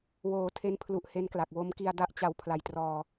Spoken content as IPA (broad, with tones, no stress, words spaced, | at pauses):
woː˩˦tʰe˦˥npʰlu˨˩ʔ he˦˥nkla˨˩k̚ wo˦˥mki˧a̯da˦˥ʔt͡ɕa˧w pʰla˨˩jtrɔː˧